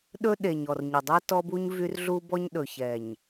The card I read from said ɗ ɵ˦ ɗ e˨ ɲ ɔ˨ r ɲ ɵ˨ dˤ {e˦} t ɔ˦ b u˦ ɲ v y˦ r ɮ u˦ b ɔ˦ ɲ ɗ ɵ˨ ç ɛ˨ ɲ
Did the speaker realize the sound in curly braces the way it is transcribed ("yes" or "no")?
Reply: yes